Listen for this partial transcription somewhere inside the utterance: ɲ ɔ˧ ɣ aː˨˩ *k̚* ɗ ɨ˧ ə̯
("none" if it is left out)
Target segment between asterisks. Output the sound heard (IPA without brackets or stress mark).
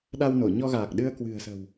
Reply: k̚